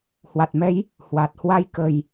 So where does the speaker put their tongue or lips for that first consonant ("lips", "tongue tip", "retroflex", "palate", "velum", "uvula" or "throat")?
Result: throat